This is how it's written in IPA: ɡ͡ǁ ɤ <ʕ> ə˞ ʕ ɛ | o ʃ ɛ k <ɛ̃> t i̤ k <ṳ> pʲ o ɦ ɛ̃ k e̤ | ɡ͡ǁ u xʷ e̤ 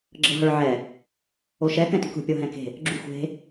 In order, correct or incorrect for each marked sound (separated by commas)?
incorrect, correct, correct